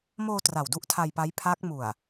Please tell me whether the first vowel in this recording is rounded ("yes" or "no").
yes